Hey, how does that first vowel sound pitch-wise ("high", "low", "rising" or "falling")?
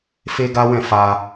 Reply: high